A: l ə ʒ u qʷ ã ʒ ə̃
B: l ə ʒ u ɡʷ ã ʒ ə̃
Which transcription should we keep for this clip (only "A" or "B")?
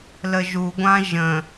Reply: B